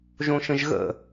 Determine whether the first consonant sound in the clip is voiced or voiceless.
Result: voiced